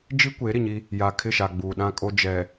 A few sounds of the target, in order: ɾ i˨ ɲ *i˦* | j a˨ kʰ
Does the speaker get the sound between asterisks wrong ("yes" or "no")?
no